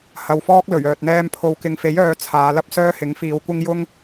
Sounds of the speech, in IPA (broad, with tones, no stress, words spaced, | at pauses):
hɐ˨wfɔː˥k̚ lɵ˨˩ɥœː˨t̚n̪ɛː˧m pʰo˨˧wkɪ˨˧ŋfe˨˥j œː˧ t͡sʰaː˨˧lɐ˥p̚ sœː˥hɪ˨˥ŋfiː˨˧wkʷɪ˥ŋ jʊ˥ŋ